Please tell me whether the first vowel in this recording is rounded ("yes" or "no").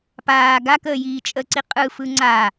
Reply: no